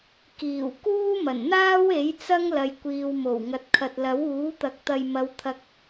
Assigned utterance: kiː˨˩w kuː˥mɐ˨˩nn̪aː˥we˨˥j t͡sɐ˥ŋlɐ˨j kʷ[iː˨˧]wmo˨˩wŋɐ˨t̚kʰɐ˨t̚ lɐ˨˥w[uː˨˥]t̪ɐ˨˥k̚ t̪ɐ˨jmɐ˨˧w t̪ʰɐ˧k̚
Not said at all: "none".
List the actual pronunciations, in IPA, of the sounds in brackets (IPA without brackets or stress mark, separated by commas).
iː˨, uː˨˥